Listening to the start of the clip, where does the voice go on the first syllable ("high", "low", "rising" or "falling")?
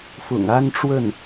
low